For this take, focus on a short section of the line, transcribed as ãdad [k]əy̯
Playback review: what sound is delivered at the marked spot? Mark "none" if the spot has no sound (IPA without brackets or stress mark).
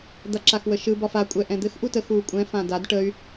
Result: ʈ